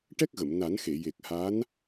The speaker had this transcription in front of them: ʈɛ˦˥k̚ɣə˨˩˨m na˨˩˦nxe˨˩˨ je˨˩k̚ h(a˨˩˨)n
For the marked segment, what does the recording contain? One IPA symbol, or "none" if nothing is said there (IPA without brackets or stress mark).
a˧˥